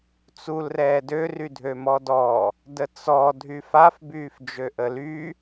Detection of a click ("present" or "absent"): absent